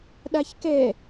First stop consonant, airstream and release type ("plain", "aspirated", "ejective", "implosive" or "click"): implosive